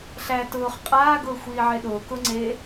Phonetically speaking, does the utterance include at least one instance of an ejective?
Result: yes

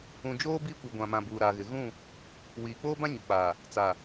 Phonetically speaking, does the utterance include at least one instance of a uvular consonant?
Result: no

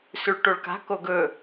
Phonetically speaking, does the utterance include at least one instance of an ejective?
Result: no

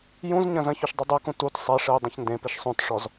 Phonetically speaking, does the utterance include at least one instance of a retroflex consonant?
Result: yes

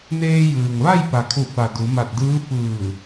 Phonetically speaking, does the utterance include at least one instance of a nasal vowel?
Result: no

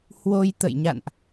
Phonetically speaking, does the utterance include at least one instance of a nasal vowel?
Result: no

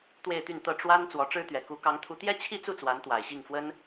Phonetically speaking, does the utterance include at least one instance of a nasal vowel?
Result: no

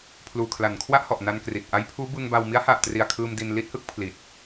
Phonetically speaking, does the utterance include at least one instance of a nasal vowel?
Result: no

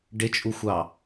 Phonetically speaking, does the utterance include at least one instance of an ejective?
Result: yes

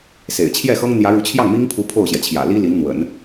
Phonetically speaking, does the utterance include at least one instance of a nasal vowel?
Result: no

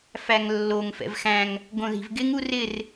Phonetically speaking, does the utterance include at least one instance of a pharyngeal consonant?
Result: no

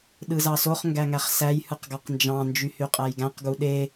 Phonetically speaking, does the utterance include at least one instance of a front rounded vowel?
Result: yes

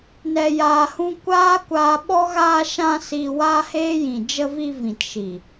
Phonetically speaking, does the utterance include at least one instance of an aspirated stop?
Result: no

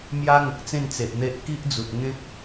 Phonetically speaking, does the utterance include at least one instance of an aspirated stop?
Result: no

